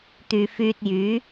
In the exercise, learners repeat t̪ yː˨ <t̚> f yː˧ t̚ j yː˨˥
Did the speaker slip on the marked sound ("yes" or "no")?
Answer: yes